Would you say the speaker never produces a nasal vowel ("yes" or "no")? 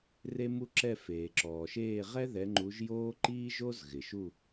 yes